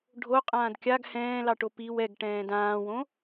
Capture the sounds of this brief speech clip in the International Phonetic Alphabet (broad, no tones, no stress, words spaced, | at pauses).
ɖʱoqʼãːd kʲaɡ hɛ̃ːlɑʈo piw ɛɡʈɛ̃ːd ãːwõ